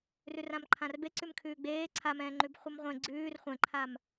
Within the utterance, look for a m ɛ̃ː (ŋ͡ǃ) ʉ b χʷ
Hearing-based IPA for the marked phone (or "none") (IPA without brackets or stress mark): ŋ͡ǃ